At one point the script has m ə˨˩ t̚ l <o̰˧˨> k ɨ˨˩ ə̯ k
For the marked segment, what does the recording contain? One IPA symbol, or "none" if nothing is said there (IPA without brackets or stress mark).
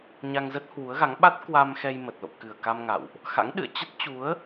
o̰˧˨